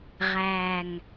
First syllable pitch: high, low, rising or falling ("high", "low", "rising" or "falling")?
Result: low